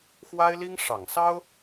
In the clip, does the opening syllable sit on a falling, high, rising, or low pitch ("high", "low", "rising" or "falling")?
high